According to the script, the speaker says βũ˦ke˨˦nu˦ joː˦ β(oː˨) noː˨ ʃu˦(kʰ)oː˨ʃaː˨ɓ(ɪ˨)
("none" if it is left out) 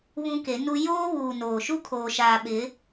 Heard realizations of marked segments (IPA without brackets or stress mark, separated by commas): uː˨, kʰ, ɪ˨˦